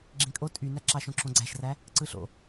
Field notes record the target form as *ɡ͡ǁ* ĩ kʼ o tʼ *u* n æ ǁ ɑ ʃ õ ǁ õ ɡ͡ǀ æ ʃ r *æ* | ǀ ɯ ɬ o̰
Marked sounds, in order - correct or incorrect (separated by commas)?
correct, incorrect, correct